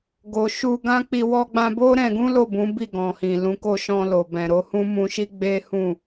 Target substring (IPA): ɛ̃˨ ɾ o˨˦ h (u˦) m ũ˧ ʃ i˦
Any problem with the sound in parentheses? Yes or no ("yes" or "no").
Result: yes